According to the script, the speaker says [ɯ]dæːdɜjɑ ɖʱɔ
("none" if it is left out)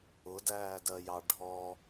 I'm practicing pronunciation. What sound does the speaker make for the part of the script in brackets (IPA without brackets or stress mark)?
ʊ